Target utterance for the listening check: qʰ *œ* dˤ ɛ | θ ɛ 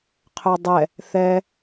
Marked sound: correct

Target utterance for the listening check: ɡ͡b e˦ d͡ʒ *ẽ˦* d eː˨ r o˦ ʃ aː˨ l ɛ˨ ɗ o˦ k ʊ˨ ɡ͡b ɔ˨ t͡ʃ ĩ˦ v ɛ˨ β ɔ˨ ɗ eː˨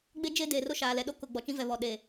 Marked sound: incorrect: e˦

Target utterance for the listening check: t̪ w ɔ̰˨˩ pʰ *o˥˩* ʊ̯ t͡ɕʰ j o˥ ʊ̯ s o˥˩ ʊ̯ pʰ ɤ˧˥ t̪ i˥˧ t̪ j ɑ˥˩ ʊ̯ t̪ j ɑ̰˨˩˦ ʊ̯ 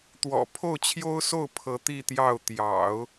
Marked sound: correct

